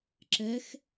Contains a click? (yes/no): yes